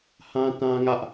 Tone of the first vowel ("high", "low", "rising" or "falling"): high